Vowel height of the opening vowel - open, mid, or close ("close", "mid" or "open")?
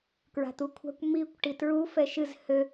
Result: open